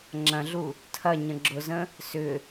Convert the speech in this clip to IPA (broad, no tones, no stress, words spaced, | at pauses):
ŋ͡ǁɐ̃ɮu | tʰɐ ɲə̃ɡ͡ǁʊzə̃ | sʏ